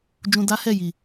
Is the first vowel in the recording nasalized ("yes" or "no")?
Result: yes